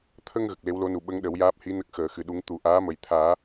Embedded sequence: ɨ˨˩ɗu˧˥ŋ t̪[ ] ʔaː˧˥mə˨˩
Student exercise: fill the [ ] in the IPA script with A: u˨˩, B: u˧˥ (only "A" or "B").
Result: A